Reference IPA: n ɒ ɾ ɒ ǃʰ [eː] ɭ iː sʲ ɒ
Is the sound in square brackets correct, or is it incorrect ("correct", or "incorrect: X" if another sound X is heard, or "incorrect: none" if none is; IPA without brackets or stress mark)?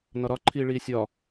incorrect: iː